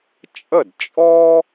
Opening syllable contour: falling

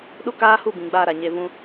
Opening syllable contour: high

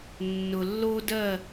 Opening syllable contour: low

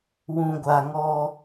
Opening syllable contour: low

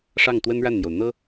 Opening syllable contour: falling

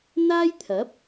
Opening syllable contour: high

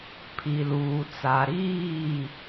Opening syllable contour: low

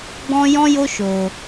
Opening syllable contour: high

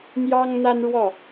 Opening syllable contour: high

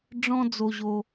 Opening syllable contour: high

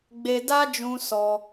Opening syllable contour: high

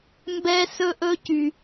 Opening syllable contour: high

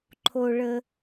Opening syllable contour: low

